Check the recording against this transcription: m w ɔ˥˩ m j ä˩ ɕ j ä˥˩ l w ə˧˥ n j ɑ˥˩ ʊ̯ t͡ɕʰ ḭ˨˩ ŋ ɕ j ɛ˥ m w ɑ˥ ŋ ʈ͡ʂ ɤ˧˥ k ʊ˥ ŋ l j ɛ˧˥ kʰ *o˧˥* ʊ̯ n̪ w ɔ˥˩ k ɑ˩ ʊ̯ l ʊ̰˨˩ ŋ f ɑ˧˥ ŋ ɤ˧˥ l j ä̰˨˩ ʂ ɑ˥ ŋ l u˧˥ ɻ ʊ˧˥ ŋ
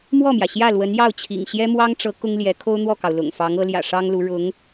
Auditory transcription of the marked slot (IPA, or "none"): o˥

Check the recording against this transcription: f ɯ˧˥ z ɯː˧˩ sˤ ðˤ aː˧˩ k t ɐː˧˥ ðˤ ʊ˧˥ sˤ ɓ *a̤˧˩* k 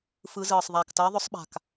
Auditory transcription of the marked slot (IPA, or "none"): a̤˧˩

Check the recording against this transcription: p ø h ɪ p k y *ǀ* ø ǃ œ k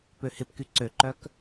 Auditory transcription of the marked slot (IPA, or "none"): ǀ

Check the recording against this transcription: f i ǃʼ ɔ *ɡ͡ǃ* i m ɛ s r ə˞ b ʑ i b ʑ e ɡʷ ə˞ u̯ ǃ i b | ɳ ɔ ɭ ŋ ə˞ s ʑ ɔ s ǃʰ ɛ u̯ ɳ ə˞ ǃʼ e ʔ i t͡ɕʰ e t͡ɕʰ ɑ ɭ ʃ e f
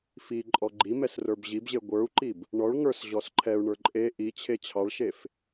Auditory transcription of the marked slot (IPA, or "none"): ɡ͡ǃ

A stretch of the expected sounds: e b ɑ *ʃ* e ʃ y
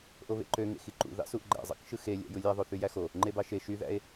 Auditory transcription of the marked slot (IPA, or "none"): ʃ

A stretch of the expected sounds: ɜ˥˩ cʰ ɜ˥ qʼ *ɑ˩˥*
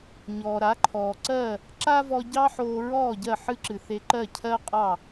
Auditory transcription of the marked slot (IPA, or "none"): ɑ˥˩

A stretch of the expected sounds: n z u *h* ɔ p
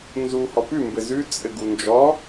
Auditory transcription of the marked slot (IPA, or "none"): h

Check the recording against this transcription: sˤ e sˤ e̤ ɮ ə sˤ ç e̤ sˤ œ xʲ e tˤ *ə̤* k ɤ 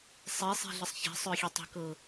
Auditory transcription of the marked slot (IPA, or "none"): ə̤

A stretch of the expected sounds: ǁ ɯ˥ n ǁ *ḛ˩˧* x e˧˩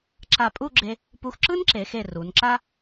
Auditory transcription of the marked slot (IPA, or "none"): e˩˧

